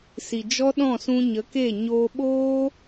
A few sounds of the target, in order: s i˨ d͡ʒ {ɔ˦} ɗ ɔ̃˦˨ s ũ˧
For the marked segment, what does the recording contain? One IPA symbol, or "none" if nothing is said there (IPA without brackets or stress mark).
ɔ˦